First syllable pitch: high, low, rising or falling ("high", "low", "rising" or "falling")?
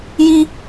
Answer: high